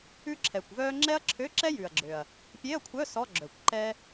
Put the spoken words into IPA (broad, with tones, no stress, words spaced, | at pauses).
ʉ˥ǁʰɛ˨˩kʷvœː˥ ŋ͡ǁɛ˥ɐ̯ǁʰø˧˥˧ǁɛ˥ jʉ˨˩ɐ̯ɡ͡ǁø˨˩ɐ̯ | pʲe˧˥˧ɐ̯kʷʰœ˧˥˧ sɔ˧˥˧ɡ͡ǁœ˨˩kʷǃɛː˥